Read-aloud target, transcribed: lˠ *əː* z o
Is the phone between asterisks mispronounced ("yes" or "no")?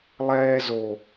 yes